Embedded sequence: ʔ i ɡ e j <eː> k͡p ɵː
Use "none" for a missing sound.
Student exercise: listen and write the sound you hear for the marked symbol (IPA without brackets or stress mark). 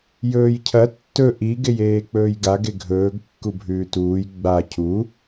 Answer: eː